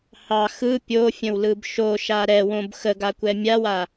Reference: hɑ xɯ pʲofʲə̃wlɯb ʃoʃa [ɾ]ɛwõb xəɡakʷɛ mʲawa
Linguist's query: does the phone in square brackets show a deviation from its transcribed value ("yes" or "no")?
no